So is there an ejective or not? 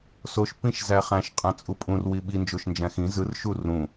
yes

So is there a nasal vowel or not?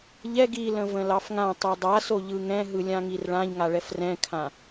yes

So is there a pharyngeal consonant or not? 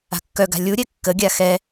no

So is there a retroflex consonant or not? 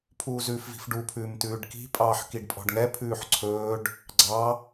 yes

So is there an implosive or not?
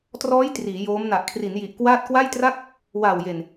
no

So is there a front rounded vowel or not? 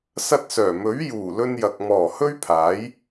yes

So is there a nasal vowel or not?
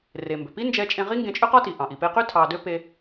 yes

